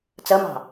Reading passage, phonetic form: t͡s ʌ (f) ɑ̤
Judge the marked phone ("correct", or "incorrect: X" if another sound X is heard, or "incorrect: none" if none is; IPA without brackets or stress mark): incorrect: m